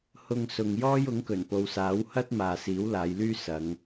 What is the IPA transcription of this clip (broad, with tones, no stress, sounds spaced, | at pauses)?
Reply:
h ʊ˧ ŋ s ʊ˨ ŋ j ɔː˥ j ʊ˨˥ ŋ k ɵ˨˩ n p o˨ w s aː˨˥ w h ɐ˥ t̚ m aː˨ s iː˨˥ w l aː˨˧ j l yː˥ s ɐ˨˧ ŋ